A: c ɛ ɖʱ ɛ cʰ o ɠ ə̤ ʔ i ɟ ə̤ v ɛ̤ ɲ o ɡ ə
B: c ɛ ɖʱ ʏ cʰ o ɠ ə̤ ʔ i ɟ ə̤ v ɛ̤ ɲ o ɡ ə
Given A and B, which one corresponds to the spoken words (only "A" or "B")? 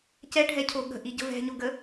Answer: A